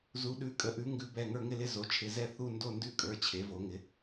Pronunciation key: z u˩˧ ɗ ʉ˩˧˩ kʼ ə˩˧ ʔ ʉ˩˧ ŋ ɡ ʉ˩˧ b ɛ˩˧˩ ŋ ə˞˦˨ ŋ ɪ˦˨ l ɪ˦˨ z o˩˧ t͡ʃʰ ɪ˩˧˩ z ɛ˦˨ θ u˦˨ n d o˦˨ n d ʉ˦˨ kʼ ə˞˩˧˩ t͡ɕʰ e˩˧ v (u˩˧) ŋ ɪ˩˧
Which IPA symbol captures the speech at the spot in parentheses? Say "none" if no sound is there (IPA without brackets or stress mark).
o˩˧